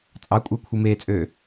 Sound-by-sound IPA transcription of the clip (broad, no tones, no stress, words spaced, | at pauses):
t͡sʼɑkʷʼɑkʷʰɯ meːt͡sʼøː